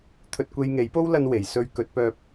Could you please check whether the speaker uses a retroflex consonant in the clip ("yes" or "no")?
no